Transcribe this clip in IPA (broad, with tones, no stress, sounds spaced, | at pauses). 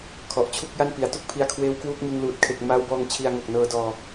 kʰ ɔ˨˩ ʔ t͡ɕʰ u˥˩ k̚ j a˥˩ n p i˩˦ a̯ t u˥˩ k̚ pʰ i˧ a̯ kʰ w eː˦˥ w k w uː˦˥ k̚ ŋ ɯ˧ ŋ l uː˨˩ t̚ kʰ e˨˩ k̚ m aː˦˥ w b ɔː˧ ŋ t͡ɕʰ i˧ a̯ ŋ o˨˩ k̚ n ɤː˧ d ɔː˧